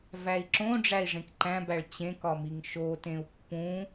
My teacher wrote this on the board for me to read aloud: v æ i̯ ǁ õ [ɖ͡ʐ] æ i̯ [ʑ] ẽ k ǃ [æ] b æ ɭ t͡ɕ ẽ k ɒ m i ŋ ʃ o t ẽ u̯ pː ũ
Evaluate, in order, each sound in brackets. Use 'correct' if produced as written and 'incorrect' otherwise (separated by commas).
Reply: correct, incorrect, incorrect